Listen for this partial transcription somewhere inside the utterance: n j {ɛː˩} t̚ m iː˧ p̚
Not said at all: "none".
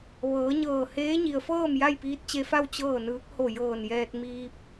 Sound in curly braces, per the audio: ɛː˧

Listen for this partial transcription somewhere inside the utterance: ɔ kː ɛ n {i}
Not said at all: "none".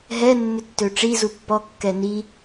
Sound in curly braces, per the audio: i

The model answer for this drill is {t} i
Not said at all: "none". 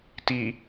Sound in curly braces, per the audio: t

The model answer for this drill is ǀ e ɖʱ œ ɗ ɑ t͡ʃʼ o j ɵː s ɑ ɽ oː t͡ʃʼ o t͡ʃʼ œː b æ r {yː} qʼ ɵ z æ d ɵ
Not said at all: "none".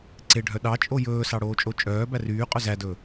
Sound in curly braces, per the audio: yː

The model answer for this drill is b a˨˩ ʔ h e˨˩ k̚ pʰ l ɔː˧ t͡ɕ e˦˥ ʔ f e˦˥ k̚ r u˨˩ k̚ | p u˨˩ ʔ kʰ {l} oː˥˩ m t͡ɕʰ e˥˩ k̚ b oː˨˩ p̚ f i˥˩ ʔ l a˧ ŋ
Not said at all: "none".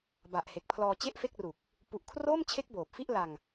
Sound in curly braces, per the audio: r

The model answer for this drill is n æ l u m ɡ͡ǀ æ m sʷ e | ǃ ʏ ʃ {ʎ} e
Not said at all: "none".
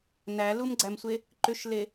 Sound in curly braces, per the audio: l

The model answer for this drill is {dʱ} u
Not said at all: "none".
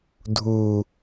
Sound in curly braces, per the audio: dʱ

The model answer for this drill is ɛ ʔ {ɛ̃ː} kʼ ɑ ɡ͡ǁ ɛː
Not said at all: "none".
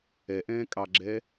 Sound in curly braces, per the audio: ɛ̃ː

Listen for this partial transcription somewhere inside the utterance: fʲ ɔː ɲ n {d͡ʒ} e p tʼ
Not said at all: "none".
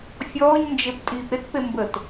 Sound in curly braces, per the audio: d͡ʒ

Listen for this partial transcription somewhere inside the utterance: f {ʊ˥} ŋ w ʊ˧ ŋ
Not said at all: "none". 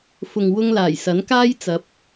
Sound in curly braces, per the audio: ʊ˨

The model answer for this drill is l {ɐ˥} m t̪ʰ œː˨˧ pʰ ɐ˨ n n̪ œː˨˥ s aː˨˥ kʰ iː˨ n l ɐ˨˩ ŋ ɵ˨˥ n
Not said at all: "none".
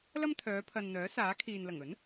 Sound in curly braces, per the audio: ɐ˥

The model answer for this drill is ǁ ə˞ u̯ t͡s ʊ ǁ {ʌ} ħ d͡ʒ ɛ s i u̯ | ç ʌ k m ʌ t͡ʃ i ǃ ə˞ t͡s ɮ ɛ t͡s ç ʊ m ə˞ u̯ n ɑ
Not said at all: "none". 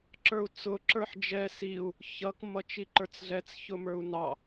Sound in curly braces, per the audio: ə˞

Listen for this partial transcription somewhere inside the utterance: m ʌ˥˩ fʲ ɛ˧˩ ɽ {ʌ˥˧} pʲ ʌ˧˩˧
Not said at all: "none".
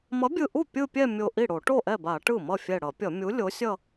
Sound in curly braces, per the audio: ʌ˧˩˧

